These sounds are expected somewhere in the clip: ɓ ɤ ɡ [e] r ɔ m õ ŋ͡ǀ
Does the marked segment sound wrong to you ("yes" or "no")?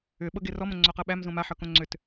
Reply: no